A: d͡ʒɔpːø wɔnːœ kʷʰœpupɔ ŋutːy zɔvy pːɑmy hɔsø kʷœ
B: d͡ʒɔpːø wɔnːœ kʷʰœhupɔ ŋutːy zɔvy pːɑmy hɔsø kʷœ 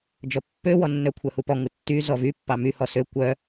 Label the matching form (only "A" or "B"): B